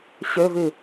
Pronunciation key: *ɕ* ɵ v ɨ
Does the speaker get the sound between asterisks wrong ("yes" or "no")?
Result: no